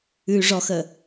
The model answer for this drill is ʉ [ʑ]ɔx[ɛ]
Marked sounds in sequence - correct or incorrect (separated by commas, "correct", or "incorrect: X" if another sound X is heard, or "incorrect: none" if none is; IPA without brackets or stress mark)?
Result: incorrect: ʐ, incorrect: ə